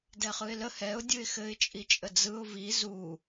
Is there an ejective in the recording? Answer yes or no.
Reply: yes